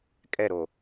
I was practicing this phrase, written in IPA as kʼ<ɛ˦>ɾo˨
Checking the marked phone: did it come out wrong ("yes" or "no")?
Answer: yes